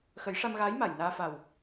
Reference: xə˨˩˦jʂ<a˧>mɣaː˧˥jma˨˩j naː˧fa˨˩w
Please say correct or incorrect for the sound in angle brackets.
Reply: correct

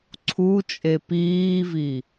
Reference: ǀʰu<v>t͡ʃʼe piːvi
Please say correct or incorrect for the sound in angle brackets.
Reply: incorrect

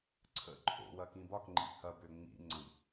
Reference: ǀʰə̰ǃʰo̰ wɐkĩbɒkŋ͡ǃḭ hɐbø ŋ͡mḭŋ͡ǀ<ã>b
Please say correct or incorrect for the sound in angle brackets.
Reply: incorrect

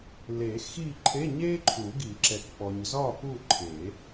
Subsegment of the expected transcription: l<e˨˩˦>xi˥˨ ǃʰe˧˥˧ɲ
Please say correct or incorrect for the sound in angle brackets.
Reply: correct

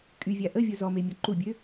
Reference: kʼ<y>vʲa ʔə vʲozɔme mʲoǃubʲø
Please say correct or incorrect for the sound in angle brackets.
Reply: correct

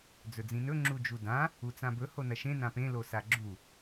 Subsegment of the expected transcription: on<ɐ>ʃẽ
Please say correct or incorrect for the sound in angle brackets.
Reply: correct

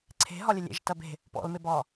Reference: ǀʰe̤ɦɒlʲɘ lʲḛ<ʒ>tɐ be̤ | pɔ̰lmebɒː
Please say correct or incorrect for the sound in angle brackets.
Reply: correct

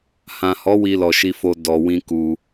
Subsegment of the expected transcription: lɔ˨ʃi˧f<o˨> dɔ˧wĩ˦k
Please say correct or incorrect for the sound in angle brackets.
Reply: incorrect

